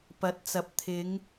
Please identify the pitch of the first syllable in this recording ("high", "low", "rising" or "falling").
rising